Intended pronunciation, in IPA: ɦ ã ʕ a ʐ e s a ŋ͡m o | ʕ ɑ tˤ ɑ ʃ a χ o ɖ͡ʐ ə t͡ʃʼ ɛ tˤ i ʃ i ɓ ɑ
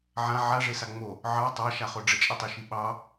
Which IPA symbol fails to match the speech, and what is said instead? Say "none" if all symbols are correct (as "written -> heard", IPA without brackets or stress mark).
ɦ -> ʕ